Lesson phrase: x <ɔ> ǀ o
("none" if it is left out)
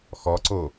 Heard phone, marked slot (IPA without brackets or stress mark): ɔ